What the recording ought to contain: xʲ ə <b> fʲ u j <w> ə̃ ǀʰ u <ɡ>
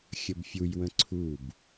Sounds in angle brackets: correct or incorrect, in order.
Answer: correct, correct, incorrect: b

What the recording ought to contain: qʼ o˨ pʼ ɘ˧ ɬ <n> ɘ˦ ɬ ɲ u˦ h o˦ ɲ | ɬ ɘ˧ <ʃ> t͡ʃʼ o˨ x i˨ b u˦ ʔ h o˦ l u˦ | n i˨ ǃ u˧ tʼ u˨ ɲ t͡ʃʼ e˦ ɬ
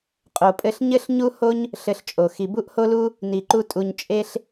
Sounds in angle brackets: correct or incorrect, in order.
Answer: incorrect: ɲ, incorrect: ɬ

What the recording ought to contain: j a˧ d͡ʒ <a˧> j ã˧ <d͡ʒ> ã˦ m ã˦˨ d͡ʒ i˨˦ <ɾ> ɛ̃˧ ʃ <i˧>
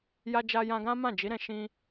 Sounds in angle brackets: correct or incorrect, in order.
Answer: correct, incorrect: ɡ, correct, incorrect: ĩ˧

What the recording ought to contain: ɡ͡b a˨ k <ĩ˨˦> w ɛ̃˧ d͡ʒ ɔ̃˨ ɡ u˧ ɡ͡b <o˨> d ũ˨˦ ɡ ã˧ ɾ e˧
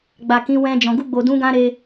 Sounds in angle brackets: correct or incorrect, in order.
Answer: correct, correct

